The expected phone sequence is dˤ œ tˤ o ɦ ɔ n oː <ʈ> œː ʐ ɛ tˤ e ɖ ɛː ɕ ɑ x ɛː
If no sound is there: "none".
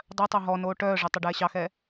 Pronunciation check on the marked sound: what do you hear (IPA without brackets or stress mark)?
ʈ